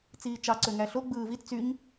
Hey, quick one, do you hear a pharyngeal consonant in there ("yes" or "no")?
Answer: no